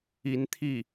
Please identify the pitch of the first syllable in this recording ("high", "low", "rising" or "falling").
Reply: rising